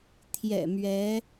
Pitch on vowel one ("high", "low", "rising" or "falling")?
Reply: low